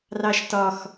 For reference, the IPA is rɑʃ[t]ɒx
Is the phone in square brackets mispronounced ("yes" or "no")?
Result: no